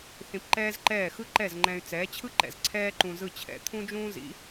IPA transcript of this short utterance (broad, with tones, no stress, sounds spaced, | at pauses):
θ ĩ˧ p ǃ ɛː˥ z ǃ ɛː˥˩ x ɯ˥ ǃ ɛ˥˩ z ŋ͡ǃ ɛ̃˧ y̯ t͡s ɛː˩˥ t͡ɕʰ ɯ˥ ǃ ɛ̰˩ z ǀʰ ɛː˥ ǃ ũ˧ z ɯ˥˩ t͡ɕʰ ɛ̰˩˥ t̪ʰ ũ˥ d͡ʒ ũː˥ z ḭ˩˥